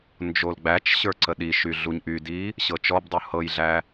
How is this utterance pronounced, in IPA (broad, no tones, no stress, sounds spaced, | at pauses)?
n d͡ʒ o l ɡ͡b æ t͡ʃ ɕ ə˞ ǀ ə ɗ i ʃ y ɮ u ɲ ʔ y d i | ɕ ɤ t͡ʃ ɔ b dˤ u h ɤ j ɮ æ